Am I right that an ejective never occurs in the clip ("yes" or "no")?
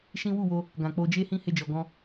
yes